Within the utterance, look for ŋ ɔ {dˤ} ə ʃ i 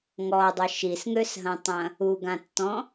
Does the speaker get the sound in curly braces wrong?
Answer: no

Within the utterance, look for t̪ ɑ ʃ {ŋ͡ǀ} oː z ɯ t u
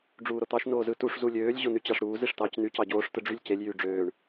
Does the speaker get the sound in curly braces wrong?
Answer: yes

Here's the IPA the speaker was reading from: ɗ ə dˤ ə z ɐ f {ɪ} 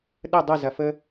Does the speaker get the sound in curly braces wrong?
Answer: yes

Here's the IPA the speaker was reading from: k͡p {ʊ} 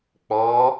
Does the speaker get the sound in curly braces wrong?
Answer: yes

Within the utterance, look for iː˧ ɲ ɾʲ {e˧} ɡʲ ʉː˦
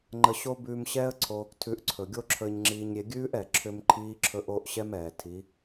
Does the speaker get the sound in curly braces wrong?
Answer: no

